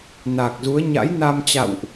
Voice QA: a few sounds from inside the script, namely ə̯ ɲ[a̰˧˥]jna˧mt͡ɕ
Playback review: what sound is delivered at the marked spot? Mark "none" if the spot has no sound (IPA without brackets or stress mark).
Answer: a̰˧˥